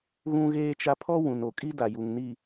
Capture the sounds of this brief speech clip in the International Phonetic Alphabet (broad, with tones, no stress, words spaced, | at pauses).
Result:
ɣũ˦ɣeː˦t͡ʃa˦ pʰɔ˦ wũ˨n o˨kʼi˦ da˨ju˨ŋ ni˨